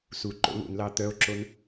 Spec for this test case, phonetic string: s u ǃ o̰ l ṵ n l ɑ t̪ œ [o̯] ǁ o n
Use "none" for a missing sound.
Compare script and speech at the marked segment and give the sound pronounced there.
o̯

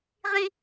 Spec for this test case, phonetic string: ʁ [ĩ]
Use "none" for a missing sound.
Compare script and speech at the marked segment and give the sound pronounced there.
ĩ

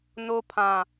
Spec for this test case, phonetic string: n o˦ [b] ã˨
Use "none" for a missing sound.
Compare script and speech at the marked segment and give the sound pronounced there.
pʰ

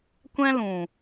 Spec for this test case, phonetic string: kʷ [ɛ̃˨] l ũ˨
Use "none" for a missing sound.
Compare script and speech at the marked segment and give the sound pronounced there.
ɛ̃˦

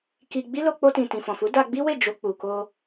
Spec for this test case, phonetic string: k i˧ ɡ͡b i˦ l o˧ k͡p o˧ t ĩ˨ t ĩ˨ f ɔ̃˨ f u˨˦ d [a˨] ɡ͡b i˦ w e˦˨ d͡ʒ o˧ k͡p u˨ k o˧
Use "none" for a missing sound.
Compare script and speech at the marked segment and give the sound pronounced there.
a˧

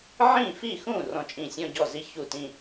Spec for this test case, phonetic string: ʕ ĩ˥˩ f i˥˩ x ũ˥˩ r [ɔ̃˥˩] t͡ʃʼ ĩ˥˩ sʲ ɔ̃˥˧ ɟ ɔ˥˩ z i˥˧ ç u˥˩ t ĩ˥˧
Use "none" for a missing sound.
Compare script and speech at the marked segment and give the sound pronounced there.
ɔ̃˥˩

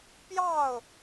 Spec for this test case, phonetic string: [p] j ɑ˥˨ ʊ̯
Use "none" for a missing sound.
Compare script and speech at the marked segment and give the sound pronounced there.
p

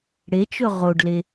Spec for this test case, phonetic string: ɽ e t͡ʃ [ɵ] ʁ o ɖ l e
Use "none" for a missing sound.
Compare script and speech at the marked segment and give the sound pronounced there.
ɵ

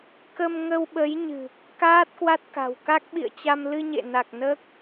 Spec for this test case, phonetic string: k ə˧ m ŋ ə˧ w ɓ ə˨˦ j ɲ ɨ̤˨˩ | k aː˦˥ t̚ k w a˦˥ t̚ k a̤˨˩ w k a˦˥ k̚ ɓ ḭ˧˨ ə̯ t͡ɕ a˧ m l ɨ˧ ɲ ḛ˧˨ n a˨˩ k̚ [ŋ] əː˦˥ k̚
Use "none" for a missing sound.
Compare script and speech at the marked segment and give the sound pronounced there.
n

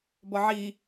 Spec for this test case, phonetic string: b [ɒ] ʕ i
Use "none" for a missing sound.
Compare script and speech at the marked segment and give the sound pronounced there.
ɒ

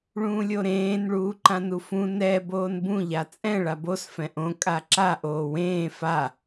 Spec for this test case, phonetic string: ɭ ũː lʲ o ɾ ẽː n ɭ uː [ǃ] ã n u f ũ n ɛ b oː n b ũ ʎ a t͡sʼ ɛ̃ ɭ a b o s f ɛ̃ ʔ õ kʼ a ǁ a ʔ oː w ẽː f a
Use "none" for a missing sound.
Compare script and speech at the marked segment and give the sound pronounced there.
ǃ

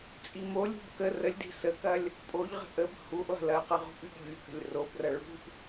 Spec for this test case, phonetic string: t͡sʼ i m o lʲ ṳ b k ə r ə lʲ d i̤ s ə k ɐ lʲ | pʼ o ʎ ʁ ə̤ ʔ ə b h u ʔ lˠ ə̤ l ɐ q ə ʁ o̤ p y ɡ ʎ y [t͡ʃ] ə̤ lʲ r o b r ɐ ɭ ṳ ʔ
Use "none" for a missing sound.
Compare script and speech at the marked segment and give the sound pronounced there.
k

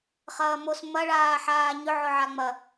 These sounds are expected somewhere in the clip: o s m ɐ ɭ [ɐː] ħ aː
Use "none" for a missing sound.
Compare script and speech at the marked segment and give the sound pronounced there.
aː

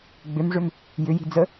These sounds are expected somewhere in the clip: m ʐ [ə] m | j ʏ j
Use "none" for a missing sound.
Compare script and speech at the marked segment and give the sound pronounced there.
ʏ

